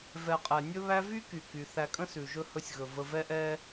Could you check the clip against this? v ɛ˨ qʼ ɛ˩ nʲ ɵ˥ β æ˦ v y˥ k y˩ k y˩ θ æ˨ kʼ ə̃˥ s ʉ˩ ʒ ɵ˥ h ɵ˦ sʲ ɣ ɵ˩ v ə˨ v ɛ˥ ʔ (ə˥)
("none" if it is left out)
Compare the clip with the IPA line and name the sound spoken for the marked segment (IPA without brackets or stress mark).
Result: ɛ˥